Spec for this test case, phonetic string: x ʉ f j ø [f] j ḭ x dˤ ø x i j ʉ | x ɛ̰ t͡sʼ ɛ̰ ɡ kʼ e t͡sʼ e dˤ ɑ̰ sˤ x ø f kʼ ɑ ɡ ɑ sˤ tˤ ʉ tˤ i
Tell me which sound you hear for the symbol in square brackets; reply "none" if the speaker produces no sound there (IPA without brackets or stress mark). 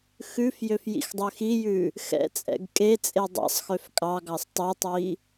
f